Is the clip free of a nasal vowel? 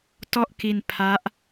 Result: yes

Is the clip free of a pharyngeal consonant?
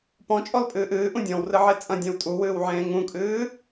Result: no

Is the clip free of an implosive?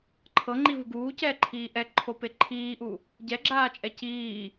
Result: yes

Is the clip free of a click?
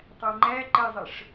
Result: no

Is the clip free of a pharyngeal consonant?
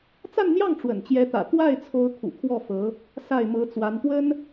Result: yes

